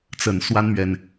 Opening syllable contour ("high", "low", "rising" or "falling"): low